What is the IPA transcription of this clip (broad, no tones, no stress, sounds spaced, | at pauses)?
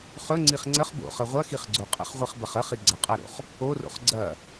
χ ɵ ŋ͡ǀ i χ ŋ͡ǀ ə χ b o̰ χ ə ʁʷ ɐ x i χ ɡ͡ǀ o qʼ ə̰ χ ʁʷ i χ b ɐ χ ə χ i ɡ͡ǀ ɐ qʼ ɐ ɾ o̰ χ | o r o̰ χ ɡ͡ǀ ɐ